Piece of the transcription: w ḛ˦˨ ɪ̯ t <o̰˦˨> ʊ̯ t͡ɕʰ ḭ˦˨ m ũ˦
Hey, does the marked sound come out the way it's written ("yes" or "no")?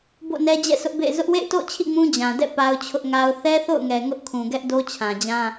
yes